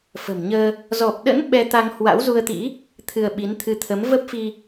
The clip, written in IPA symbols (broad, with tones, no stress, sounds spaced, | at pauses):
f ə̤˨˩ m ɲ əː˧ | z ɔ˨˩ p̚ ɗ ə̰˧˥ n ɓ ɛ˧ t̪ a˧ ŋ h w a̰˧˥ w z u˧ ə̯ t̪ ḭ˧˥ | t̪ʰ ɨ˧ ə̯ ɓ i˨˦ n t̪ʰ ɨ˧ t̪ʰ ə˨˦ m v ə˦˥ p̚ f i˧